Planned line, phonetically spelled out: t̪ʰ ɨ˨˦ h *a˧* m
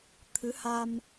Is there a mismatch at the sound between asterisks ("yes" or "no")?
no